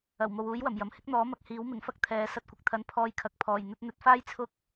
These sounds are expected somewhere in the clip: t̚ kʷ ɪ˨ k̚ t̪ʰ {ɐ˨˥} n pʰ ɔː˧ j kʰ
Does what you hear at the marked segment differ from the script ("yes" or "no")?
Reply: no